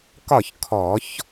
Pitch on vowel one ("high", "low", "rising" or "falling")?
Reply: falling